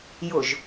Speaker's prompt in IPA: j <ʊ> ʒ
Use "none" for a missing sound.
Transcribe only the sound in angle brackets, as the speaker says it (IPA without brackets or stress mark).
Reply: ʊ